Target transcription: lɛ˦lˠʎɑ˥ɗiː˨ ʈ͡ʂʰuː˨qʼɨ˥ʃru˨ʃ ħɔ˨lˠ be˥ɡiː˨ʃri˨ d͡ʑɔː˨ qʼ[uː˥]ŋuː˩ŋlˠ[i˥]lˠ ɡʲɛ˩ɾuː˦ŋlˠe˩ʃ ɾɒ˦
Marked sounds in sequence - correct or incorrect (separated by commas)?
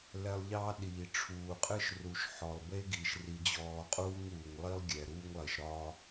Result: correct, correct